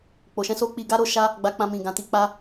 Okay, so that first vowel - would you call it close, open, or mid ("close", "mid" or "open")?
mid